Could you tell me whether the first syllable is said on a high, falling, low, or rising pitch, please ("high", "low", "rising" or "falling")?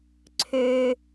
high